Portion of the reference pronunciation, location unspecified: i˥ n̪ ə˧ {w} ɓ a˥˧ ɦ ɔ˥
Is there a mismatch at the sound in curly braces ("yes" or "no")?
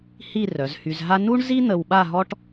no